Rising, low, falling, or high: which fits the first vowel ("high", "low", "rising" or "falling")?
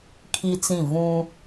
high